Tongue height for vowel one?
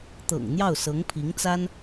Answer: mid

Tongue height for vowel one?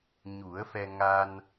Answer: high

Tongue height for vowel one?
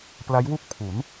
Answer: low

